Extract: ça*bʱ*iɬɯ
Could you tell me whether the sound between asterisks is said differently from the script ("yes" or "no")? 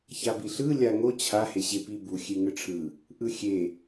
yes